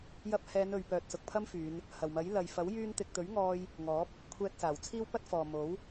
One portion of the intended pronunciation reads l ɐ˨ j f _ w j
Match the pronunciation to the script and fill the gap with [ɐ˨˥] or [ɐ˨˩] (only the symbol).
ɐ˨˥